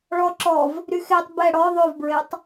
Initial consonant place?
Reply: retroflex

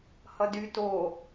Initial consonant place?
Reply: glottal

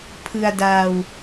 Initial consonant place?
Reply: labial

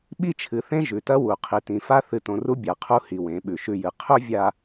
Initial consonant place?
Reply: labial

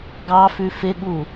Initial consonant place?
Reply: velar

